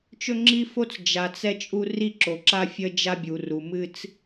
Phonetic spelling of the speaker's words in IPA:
t͡ʃ ɵ˦ ŋ͡ǁ i˦ f o˦ t͡s d͡ʒ a˨ t͡s ɛ˦ t͡ʃʼ u˦ r i˦˨ ǁ o˨ ǁ a˦ fʲ ə˦ d͡ʒ a˦ bʲ u˨ r u˨ m ɨ˦ t͡s

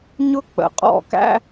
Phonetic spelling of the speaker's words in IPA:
ɲ ʊ˥ k͡p ə̰˩ qʼ ɔ̰˥˩ k æ̰˥

